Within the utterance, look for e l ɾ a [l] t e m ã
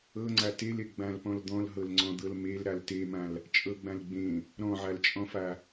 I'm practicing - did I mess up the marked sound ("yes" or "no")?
no